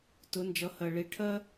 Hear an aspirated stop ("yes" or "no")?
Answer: yes